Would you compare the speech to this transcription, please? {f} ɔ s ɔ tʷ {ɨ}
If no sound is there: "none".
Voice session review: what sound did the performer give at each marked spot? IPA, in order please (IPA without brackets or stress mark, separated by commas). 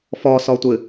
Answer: f, ɨ